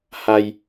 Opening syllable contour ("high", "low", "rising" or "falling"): low